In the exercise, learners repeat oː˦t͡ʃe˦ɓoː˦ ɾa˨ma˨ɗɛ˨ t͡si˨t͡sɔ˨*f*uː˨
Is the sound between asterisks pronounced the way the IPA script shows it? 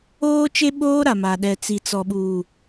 no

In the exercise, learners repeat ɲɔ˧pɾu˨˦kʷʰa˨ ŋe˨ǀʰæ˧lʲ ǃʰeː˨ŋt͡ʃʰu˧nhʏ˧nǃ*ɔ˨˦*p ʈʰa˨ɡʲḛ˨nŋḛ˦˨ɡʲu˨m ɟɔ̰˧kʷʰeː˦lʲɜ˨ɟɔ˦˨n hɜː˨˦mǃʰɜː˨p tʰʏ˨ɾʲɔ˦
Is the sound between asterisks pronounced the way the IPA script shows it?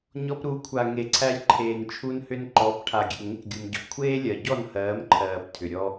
yes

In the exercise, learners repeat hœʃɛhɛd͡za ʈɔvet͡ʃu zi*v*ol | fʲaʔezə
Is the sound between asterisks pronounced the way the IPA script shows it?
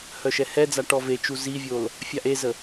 no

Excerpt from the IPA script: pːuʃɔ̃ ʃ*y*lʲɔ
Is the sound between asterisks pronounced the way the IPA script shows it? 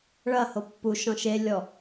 no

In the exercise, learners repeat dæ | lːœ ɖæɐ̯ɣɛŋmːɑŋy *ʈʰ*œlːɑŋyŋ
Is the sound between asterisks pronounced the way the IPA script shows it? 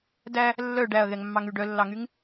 no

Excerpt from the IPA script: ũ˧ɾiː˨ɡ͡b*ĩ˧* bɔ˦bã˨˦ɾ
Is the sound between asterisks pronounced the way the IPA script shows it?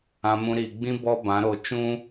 no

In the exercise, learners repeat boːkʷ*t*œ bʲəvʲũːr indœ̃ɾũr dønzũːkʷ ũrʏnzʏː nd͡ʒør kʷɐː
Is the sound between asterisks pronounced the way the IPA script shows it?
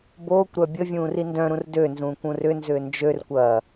no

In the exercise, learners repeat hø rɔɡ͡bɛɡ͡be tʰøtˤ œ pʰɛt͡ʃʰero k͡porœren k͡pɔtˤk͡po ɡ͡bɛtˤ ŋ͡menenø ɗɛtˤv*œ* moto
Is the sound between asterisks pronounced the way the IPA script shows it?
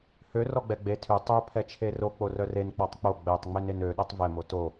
no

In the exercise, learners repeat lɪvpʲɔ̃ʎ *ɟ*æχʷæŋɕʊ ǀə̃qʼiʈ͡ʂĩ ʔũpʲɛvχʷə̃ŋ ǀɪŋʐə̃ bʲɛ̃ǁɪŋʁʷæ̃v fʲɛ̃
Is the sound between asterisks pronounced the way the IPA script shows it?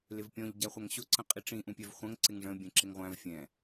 yes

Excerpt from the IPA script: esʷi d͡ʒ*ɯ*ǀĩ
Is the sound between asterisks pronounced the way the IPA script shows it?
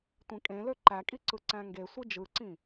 yes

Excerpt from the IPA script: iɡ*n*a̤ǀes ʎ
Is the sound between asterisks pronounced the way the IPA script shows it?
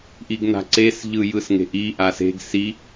yes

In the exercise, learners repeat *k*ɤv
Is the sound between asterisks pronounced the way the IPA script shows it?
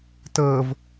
no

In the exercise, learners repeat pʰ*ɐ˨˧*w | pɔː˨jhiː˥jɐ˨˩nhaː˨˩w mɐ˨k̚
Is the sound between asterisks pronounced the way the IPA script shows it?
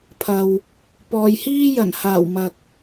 no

